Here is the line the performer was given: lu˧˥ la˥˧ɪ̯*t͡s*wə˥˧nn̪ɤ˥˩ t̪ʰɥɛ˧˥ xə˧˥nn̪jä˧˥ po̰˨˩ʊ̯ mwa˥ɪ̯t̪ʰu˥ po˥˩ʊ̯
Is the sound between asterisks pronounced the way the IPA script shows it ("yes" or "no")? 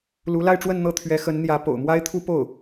no